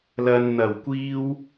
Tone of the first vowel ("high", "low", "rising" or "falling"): low